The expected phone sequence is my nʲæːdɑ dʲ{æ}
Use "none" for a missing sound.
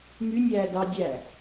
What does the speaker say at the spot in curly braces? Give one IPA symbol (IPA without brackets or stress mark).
æ